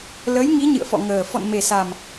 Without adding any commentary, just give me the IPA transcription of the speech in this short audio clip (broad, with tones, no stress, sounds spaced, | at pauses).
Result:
l ə˨˦ j ŋ i˨˦ ɲ ɨ̰˧˨ ə̯ f ɔ̰˧˨ ŋ əː˨˩ f ɔ̰˧˨ n m e˨˩ s a˨˩ m